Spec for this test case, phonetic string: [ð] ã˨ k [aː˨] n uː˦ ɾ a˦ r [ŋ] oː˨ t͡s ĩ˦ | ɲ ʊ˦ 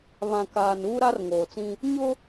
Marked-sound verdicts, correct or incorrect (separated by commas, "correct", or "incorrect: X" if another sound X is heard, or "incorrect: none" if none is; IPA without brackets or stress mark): incorrect: β, correct, correct